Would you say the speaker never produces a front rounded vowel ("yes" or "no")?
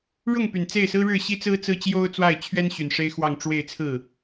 no